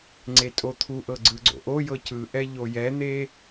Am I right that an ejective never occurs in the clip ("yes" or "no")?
no